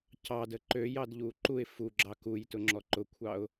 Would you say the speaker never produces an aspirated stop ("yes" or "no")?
no